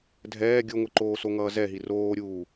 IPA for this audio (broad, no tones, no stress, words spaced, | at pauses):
dʱɛː ɡʲoŋʷɯǃoːso ŋʌːzɛɦi roːɾʲuː